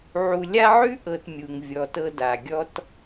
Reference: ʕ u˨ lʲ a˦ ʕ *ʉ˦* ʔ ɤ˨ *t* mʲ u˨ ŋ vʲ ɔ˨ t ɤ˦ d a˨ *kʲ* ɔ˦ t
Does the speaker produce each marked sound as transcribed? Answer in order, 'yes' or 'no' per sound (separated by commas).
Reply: yes, yes, no